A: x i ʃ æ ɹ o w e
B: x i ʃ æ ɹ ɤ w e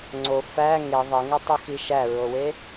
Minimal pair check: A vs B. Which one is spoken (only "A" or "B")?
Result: A